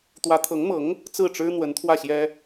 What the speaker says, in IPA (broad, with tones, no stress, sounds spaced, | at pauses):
t̪ w ä˧˥ t̪ʰ ɤ˧˥ ŋ m ɤ˧˥ ŋ | t͡s ɹ̩˥˩ ʈ͡ʂ ɻ̩˥ n̪ w ə˧˥ n t̪ʰ w ä˥˩ ɕ j ɛ˥